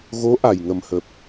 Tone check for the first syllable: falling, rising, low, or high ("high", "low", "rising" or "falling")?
rising